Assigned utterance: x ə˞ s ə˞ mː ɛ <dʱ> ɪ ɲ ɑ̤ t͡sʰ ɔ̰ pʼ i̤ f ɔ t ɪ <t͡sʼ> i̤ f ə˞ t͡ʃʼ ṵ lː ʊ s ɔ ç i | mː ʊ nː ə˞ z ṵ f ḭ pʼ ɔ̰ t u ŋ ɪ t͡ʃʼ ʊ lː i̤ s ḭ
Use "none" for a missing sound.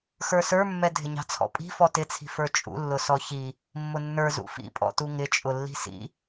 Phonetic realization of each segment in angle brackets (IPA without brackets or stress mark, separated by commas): dʱ, t͡sʰ